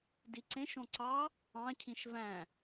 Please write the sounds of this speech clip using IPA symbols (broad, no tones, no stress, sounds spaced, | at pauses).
d i ǀ ẽ ʃ õ ǀ ɑ | ɑ̃ cʰ ĩ ʃ v æ̃